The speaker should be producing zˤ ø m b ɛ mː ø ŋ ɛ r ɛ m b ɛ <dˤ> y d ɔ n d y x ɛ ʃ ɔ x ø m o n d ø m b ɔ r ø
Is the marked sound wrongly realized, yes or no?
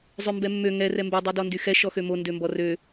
no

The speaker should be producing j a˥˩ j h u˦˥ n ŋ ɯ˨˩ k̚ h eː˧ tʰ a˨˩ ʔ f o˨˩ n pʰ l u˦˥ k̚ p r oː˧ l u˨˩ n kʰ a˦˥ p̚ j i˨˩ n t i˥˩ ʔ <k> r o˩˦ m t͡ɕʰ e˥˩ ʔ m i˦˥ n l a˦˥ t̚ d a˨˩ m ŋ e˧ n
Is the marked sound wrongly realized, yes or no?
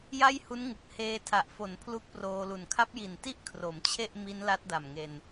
yes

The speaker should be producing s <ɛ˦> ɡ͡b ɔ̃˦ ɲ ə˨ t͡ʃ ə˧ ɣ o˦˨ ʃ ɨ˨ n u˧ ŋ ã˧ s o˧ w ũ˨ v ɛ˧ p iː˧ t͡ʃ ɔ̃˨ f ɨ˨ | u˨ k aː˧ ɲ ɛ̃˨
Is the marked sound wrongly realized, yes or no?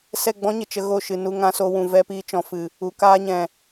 yes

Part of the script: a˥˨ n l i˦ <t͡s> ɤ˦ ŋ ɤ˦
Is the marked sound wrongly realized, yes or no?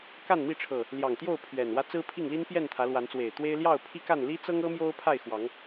no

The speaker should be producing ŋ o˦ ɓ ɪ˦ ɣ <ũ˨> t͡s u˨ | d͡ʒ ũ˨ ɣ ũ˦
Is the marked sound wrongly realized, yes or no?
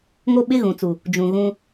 no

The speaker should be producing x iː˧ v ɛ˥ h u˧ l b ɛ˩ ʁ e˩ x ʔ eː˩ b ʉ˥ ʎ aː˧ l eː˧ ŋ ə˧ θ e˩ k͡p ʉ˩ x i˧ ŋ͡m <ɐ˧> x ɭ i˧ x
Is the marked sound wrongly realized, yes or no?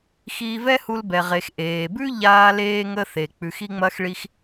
no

